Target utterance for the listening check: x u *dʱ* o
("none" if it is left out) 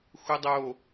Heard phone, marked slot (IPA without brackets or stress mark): dˤ